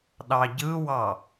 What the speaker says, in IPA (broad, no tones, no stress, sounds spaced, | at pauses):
ɗ ɑ ɟ ɯ w ɑ